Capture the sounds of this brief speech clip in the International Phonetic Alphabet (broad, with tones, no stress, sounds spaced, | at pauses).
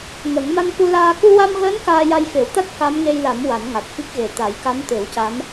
ŋ ə˨˩˦ ŋ m a˧ n k u˧ l aː˧ k u˧ w a˧ m ɣ əː˧˥ n k aː˧ j a˧ j f e˨˩˦ w t̪ a˦˥ t̚ k a˧˥ m ŋ e˧ j l a˨˩˦ m w a˨˩˦ n ŋ a˨˩ t̚ f i˦˥ k̚ ɣ e˨˩ t̪ a˨˩˦ j k a˧˥ m t̪ e˨˩˦ w c a˧˥ m